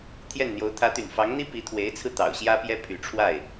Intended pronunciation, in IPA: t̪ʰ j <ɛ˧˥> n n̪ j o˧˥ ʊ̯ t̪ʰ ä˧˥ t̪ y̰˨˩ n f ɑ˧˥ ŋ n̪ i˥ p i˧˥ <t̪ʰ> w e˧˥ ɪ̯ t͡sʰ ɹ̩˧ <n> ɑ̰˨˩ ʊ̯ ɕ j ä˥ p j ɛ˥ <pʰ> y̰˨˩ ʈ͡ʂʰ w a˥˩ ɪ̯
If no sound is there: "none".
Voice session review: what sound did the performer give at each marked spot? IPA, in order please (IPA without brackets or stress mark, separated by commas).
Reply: ɛ˥˩, t̪ʰ, t̪, pʰ